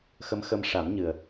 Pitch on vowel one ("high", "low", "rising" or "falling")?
rising